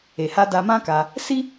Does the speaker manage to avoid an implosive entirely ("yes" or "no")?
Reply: yes